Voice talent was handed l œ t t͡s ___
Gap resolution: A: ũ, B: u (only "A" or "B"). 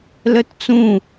A